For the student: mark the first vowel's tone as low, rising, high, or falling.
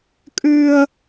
high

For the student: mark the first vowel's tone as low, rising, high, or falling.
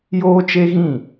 high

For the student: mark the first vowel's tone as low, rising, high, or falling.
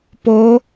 rising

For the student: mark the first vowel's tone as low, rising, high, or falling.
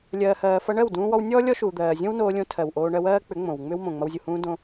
low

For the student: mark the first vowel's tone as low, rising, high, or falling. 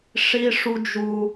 high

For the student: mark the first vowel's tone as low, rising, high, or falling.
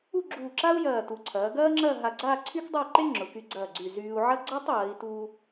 falling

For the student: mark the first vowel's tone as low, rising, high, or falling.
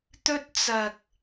high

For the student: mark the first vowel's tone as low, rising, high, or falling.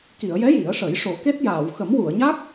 low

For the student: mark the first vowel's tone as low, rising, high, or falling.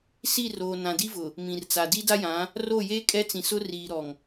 falling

